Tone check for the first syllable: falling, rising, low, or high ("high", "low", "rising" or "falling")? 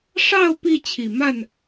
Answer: falling